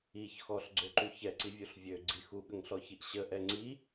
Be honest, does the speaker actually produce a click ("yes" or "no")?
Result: yes